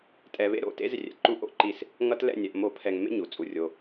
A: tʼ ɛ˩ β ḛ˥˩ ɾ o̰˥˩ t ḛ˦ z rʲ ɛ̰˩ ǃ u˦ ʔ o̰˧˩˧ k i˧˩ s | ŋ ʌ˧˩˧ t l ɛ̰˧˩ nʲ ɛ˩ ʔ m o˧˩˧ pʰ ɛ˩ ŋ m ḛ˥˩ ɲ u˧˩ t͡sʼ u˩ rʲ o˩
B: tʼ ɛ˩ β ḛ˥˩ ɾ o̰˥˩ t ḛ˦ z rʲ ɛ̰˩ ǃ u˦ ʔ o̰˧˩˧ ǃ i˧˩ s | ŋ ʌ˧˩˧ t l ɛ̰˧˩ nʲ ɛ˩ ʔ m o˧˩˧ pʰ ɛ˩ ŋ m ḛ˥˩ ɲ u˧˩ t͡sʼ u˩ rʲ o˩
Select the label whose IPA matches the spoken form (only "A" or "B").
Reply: B